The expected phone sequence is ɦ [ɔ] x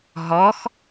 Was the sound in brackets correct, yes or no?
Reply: yes